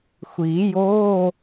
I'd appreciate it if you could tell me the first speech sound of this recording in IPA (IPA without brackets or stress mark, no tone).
xʷ